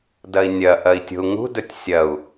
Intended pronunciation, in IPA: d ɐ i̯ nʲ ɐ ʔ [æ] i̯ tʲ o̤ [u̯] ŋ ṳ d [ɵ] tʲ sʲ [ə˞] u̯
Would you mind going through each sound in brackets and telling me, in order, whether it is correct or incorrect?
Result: incorrect: ɐ, correct, correct, incorrect: ɐ

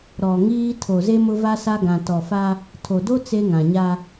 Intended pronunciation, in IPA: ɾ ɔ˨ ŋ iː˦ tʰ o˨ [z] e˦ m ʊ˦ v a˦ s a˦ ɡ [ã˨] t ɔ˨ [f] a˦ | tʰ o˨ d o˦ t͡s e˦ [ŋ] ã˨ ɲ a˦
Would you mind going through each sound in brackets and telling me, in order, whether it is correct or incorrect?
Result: correct, correct, correct, correct

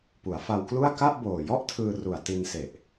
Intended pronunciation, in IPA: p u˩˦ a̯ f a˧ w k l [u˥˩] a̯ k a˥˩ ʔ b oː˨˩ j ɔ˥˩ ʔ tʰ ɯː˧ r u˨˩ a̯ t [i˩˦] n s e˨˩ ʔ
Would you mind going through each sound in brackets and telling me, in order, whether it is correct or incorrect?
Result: correct, incorrect: i˧

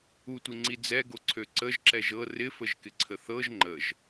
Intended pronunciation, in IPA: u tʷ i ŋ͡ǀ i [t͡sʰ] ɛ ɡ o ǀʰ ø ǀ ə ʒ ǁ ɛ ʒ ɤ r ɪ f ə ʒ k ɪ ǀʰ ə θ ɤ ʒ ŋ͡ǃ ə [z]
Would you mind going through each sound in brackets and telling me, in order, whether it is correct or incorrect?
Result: incorrect: d͡z, incorrect: ʒ

